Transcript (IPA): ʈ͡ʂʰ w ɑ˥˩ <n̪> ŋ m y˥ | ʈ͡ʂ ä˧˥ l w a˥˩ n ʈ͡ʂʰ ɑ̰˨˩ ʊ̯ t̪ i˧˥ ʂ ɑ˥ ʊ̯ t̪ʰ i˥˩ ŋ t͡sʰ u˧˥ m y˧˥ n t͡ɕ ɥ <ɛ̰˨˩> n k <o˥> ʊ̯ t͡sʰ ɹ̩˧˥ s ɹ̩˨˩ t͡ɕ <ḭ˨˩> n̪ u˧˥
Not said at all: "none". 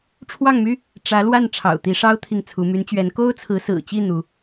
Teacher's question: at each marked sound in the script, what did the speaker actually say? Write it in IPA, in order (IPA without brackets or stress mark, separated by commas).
none, ɛ˧˥, o˥, i˥˩